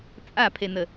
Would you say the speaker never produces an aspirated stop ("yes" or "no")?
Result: no